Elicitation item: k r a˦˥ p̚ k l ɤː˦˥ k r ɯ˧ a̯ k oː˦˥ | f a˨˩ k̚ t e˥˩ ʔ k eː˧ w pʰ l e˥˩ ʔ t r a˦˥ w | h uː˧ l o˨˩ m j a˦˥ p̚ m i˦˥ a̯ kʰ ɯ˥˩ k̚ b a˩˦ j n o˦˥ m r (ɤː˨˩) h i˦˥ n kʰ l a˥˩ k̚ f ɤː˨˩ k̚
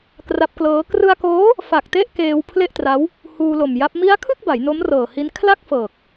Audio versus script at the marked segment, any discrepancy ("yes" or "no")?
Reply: no